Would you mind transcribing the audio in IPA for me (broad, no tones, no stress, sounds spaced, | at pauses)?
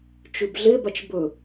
t͡ʃ ʉ b ɮ e b a t͡ʃ b ɵ